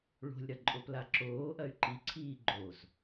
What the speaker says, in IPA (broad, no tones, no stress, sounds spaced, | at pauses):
ɭ o̤ lʲ ɾ ɐ ǃʼ o p l a ǁ oː ʔ ɐ y̯ ǃ i ǀʰ iː ɡ͡ǃ o z